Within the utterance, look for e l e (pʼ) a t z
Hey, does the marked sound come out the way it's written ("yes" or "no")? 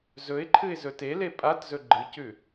yes